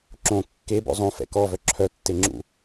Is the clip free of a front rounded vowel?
no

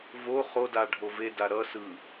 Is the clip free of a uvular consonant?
no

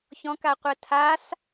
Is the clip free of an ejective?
yes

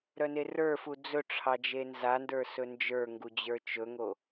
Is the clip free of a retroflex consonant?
no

